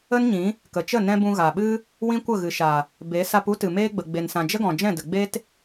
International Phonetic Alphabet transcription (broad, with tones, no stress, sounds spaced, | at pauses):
ə˦ n ɲ ĩ˨˦ | k ə˨ t͡ʃ ə˦˨ n ɛ̃˧ b ũ˧ ɣ a˨ ɓ ɨ˦ | w ĩ˦ kʷ ə˦˨ ɣ ɨ˨ ʃ a˨ | b e˨˦ s a˧ p u˦ t ɨ˨ m eː˧ ɡ͡b ə˨ ɡ͡b e˨ n s ã˨ d͡ʒ ə˦ ɡ ɔ̃˨ d͡ʒ ɛ̃˦˨ d ə˨ ɡ͡b e˦ t